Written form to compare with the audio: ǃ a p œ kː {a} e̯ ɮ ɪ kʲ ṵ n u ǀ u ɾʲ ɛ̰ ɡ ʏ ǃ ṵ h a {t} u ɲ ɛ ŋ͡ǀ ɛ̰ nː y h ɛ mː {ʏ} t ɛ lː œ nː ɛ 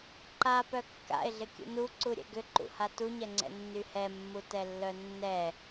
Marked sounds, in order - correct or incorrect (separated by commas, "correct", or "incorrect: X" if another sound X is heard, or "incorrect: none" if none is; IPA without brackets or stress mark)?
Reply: incorrect: a̰, correct, incorrect: u